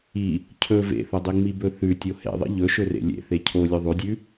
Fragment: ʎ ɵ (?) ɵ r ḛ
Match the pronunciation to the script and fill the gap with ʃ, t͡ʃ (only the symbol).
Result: ʃ